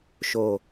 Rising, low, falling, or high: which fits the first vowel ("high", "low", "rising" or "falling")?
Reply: low